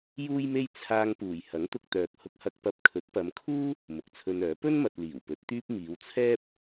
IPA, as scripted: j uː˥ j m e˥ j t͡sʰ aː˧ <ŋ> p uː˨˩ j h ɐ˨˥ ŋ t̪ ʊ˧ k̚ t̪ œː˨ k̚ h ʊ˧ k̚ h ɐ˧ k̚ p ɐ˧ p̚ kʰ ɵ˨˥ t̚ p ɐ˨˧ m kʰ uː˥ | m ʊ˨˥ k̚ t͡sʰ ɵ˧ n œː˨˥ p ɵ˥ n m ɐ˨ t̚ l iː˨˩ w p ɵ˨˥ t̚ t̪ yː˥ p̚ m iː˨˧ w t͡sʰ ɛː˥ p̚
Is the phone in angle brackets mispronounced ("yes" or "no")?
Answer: no